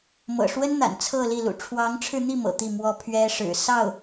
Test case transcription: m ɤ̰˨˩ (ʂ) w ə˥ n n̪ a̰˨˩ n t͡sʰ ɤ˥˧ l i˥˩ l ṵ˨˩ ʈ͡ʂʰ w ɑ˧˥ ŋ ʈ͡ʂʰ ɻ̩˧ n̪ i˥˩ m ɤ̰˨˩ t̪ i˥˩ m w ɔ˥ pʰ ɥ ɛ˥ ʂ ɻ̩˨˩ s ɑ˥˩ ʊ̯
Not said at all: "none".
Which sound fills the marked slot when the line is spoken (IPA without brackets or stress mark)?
ʂ